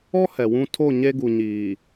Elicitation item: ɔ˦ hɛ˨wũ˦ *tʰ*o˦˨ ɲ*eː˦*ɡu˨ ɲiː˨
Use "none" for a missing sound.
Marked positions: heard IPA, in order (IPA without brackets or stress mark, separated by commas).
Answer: tʰ, e˦